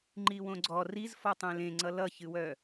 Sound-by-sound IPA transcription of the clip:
ŋ͡ǃ i w õ ɡ͡ǀ ɔ r i z f ɔ tˤ ẽ l ẽ ŋ͡ǀ ʌ l ʌ ç ɨ w œ

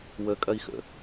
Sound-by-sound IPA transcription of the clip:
w ə kʼ ɐ i̯ x ə̰

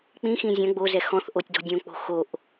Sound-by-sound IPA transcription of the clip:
k͡p ĩ x ĩ zʲ ɐ̃ ɡ͡b o z ɛ x ɔ̃ θ ʔ o tʲ d ɔ̤ dʲ õ k͡p o̤ x o ʔ

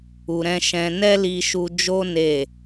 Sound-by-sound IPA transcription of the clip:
u˨ ɾ ɛ̃˧ ʃ ɛ̃˧ n ɛ˦ l i˧ ʃ u˧ d͡ʒ o˦ n e˦˨

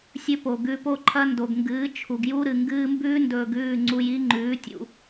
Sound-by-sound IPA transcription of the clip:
sʲ ɵ˦ p o˨ ɡ ʉ˧ p o˦ ǃʰ ɐ˦ n d o˨ ɡ ŋ ɡ ɨː˨˦ t͡ʃʰ u˨ ɡ j u˦ ɾ ɨ˨ ŋ ɡ ɨː˧ m b ʉː˦ n d ɵː˧ ɡ ʉː˦˨ ŋ͡ǀ u˧ j i˦ ŋ͡ǃ ʉː˨˦ tʲ ṵ˨

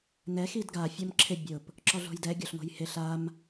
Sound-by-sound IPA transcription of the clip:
n ɛ x i d ɡ a fʲ ɔ m ǁʰ ɪ bʲ ʊ p | ǁ ɔ ɮ o̤ j d ɛ ɡʲ o ɬ ŋ o̤ j h ɪ ɬ a m

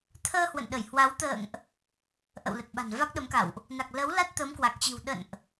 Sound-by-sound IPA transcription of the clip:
t̪ʰ əː˧ h w ə̰˧˨ n ɗ ə˧˩ j h w a˨˦ w t̪ ə̰ː˧˨ ŋ ʔ | ʔ ə̰˧˨ w l ə˨˩ t̚ ɓ a̤˨˩ n v a˦˥ k̚ ɗ ə˨˦ m k a̰˧˨ w ʔ | n a˨˩ k̚ l ə˨˦ w l a˦˥ t̚ t̪ ə˨˦ m k w a˨˩ k̚ t͡ɕ i̤˨˩ w ɗ ə̰˧˨ n ʔ

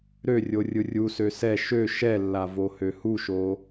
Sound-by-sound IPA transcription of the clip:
ɾ ø rʲ o rʲ ɯ rʲ u s ø s ɛ ʃ ø ʃ ɛ lː a v o h ø h u ʃ o

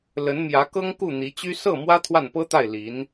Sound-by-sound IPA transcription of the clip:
l ə˧˥ n m j ä˧˥ k ɤ˥ ŋ k u˥˩ n̪ i˧˥ t͡ɕ y˥ s ɤ˥˩ m w ä˥ t̪ʰ w a˥˩ n p ɤ˥ t̪ a˥˩ ɪ̯ l i˧˥ n

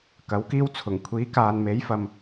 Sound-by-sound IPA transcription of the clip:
k ɐ˨˥ w k iː˥ w t͡sʰ ʊ˨˩ ŋ kʷʰ iː˨˥ k aː˨ n m e˨˥ j f ɐ˨ m

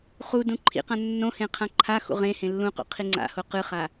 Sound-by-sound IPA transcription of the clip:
χ u d ũ ǃʰ ḭ q ã nː õ h ẽ qʰ ã ǃʰ a x ṵ ʁ ẽ h ẽ lː ũ q o̰ qʰ i ŋ͡ǀ a̰ h o q ɯ χ a

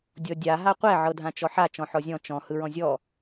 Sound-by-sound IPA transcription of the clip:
dʲ ɔ dʲ a ɦ a qʷ ɛ ʕ ɤ dʱ ã t͡ʃ ɔ ħ a t͡ʃ ɔ̃ ħ ɔ zʲ ɔ̃ t͡ʃ ɔ̃ h ɯ ɹ ɔ̃ zʲ ɔ

